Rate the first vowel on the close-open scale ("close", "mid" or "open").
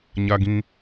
open